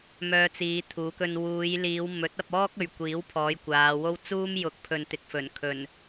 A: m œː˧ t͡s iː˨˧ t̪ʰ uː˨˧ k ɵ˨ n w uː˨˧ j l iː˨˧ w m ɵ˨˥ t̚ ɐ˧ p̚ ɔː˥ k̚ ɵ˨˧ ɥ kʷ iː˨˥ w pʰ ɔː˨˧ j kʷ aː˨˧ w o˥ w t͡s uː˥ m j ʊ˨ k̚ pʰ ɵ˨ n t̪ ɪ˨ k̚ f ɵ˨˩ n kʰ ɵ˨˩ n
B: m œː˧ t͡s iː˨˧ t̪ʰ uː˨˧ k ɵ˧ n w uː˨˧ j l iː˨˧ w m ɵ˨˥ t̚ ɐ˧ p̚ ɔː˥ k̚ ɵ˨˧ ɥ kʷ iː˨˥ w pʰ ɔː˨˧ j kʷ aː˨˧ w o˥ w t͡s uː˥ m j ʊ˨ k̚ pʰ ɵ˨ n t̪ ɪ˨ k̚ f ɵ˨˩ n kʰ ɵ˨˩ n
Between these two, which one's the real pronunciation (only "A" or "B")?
B